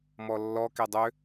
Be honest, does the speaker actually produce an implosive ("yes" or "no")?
no